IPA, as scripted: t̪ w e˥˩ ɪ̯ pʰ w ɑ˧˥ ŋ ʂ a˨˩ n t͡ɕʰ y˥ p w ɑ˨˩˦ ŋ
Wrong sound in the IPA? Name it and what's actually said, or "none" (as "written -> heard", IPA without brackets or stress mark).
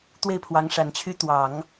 p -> t̪